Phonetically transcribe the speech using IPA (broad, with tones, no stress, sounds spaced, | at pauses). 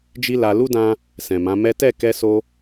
d͡ʒ i˦ l a˧ l u˦ d ã˧ | s ɛ̃˨ m ã˨˦ m ɛ˦ t ɛ˦˨ k ɛ˧ s o˧